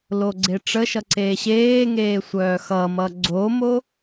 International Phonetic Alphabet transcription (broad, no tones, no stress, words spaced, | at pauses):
loɡ͡ǀeʈ͡ʂəʃʌ ǀeːɕeːŋeː sʷœːxʌmʌ ɡ͡ǀomo